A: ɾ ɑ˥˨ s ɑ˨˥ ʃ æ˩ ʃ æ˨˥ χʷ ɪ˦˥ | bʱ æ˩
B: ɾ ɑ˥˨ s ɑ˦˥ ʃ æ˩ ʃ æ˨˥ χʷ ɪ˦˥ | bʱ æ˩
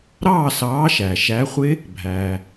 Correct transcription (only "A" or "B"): A